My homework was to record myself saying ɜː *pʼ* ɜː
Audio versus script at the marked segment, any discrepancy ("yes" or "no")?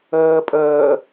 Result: no